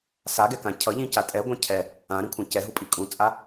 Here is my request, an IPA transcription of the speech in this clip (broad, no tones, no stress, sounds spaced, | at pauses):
s a ɡ ɛ k ã cʰ ʌ ʎ ĩ c a tʼ ɛ ɡʷ ã cʰ ɛ | ã ɾ ĩ kʷʰ ã c ɛ ɦ u pʼ i kʼ ũ t͡sʼ a